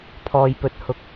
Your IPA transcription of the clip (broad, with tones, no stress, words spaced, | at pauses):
pʰɔː˨jpɵ˨t̚hʊ˨k̚